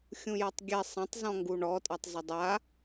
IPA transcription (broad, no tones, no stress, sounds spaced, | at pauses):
xʲ ũ j a tˤ ɡʲ ɛ sˤ ã tˤ z ɔ̃ ŋ ɡ u ɳ ɔ tʼ a tˤ z ɪ dˤ a